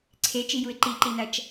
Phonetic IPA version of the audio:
ǀʰ e t͡ʃ i j u ɪ̯ ǃ i ǃ i n ɐ t͡ʃ

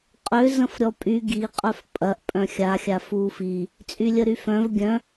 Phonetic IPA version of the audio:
qʼ ø z ə̃ f ɾʲ ɔ pʼ y ɡ i qʼ œ f pʼ ɐ ʔ pʼ œ̃ xʲ a xʲ a f u f i | t͡sʼ y lʲ ə ɾ y f œ̃ v ɡʲ œ̃

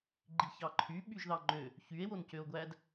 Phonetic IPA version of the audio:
ɡ͡ǃ i ç ɑ ǃʰ y ɓ y ʒ ð ɑ ŋ͡ǃ ø | ç y e̯ w o n c ø o̯ ɡʷ æ d

